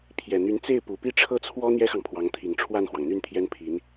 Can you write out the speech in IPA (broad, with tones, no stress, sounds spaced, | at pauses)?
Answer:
pʰ j ɛ˨˩ n̪ y˧˥ n t͡s e˥˩ ɪ̯ p u˨˩ p i˥˧ ʈ͡ʂʰ ɤ˥˩ t͡sʰ w ɔ˥ n̪ j ɛ˥ x ɑ˨ ŋ pʰ w ɑ˧˥ ŋ t̪ʰ i˨˩ ŋ ʈ͡ʂʰ w a˥˩ n x w ɑ˩ ŋ n̪ y˥˩ n t̪ʰ j ɛ˥ n pʰ i˧˥ n